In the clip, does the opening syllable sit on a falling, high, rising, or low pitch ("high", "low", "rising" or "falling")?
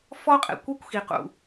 high